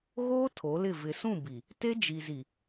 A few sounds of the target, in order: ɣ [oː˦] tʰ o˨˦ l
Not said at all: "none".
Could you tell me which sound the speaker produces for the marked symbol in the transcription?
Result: oː˦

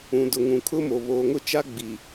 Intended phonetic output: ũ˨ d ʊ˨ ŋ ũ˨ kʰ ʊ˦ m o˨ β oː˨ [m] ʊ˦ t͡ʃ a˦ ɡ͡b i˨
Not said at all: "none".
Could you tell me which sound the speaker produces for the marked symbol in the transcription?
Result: ŋ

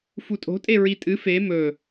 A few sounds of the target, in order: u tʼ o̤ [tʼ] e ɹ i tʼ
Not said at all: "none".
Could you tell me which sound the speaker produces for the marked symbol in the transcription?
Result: tʼ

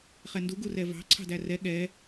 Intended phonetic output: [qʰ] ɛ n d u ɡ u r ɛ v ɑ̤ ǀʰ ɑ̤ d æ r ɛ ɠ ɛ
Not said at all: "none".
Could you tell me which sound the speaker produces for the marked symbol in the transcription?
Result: χ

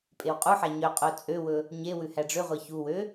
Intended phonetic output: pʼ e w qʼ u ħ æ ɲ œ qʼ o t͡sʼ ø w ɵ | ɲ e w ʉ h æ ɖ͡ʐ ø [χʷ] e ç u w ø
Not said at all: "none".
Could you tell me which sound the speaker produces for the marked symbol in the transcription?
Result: ʁʷ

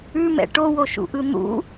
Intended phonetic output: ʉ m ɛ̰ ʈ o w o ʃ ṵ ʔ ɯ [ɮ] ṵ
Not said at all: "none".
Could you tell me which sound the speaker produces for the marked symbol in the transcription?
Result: n̪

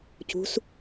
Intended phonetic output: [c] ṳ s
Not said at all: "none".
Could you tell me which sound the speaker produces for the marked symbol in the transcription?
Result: c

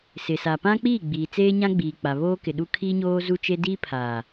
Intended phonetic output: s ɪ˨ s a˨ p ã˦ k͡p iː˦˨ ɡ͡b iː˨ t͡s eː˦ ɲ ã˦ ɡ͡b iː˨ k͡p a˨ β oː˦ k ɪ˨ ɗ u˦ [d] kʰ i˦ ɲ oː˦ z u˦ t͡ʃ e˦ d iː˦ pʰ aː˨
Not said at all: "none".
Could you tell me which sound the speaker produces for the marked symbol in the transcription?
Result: none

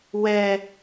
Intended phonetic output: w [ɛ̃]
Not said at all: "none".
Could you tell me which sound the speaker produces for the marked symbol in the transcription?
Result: ɛ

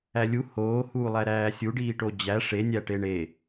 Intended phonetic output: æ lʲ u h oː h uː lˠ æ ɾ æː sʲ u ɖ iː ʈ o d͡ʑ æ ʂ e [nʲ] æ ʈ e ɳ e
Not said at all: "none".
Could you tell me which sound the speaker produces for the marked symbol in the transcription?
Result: nʲ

